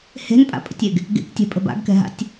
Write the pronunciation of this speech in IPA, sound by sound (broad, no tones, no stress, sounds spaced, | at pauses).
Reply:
h e̤ n pʼ a̰ pʼ ə̰ tʲ e ɡ | ɡ ḛ k tʲ ɛ̤ pʼ ə̤ b a̰ ɡ k ɛ̤ ɦ a̰ tʲ